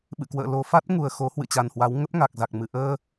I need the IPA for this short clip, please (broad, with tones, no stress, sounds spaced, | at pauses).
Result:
ɓ ɨ̰˧˨ k w ə̰ː˧˨ l o˨˩ f a˦˥ t̚ ŋ u˨˩ ə̯ x o˨˦ h w ɨ̰˧˨ t͡ɕ a˨˩ n h w a˨˦ w ŋ ə˦˥ p̚ ŋ a˨˩ k̚ z a˨˩ k̚ m ɨ˨˩ ʔ əː˧